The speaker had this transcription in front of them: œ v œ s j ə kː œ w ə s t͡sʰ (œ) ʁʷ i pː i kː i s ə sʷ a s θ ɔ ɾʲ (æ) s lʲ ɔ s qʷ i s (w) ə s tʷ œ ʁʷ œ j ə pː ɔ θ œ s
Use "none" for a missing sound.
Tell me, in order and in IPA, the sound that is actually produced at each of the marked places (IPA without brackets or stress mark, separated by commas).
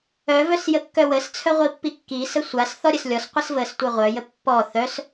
œ, ə, v